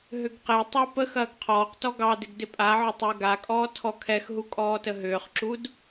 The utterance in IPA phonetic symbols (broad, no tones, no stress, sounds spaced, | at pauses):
ɦ ʏ ɡ q e tˤ ɑ p ə x ɐː ɡ qʰ ɔː q t ɔ ɡ ɑ d ɪ ɡ d ɪ pʼ a ʕ ʏ tˤ ʏː ɡ a kʼ ɔː tʰ ɔ kʰ ɛ x ɦ u kʼ ɔː t ə ɦ ʏː χ ǁ u d